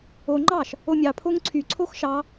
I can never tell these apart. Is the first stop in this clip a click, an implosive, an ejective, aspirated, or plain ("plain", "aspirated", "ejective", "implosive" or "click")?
click